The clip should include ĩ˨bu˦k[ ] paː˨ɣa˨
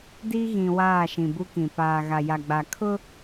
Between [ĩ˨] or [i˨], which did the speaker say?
ĩ˨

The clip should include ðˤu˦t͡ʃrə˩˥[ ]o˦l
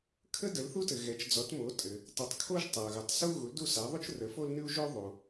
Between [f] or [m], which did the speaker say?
f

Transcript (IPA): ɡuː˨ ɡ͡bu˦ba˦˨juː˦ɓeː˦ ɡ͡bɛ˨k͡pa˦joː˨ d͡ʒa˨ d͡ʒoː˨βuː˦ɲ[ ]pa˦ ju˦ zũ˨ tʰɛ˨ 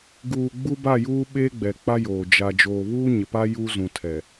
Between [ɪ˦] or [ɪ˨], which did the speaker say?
ɪ˨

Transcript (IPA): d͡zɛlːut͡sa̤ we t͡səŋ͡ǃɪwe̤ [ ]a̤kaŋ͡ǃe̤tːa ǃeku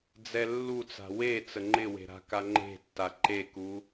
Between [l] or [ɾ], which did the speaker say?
ɾ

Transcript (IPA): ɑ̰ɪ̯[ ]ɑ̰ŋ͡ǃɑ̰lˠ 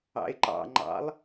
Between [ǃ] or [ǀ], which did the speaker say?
ǃ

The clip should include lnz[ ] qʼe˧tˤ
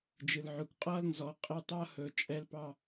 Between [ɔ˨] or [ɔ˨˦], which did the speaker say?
ɔ˨˦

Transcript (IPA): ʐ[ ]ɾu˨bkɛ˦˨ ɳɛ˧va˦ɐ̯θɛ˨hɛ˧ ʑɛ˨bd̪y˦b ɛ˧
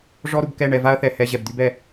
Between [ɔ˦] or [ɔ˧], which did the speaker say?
ɔ˦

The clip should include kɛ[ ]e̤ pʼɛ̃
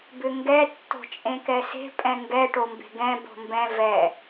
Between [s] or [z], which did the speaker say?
s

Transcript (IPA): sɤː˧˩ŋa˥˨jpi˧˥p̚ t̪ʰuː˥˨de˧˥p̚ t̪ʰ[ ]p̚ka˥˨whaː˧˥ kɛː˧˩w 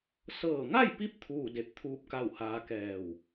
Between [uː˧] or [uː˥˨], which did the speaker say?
uː˥˨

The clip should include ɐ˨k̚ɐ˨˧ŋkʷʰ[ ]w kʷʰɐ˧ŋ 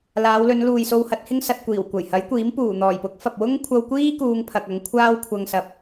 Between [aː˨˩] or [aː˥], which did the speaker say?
aː˥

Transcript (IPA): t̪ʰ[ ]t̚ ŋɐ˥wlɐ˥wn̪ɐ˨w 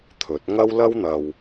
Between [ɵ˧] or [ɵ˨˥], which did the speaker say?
ɵ˨˥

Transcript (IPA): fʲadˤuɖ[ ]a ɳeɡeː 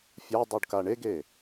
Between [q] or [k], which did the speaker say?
k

